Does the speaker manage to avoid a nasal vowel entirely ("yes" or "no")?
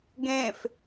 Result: no